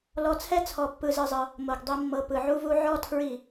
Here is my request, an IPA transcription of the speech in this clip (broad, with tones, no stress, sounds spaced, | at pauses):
l ɔ˧ t͡sʰ ɛ˦ t͡sʰ ɔ˧ pː ɯ˧ z ɯ˧ zˤ ɤ˧ | m o˨ ɡ dˤ i˧ mː ɤ˧ p ɯ˨ ʕ u˦ v u˦ ʕ ɔ˦ tʰ ɹ i˦˨